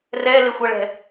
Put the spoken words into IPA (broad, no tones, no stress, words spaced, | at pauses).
rɛlexʷʌɭɛ̤